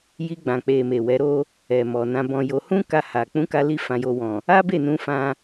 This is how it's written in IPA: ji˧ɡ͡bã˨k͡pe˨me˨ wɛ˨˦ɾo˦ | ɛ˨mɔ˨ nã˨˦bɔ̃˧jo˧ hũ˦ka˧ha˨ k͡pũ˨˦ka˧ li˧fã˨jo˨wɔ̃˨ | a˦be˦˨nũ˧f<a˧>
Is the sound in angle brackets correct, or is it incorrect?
incorrect